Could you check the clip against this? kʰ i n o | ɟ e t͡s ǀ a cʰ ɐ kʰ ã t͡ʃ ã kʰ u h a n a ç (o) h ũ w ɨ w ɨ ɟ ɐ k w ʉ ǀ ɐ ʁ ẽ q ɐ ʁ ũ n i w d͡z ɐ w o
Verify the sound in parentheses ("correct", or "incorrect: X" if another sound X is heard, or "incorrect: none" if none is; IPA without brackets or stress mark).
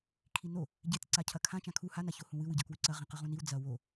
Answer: correct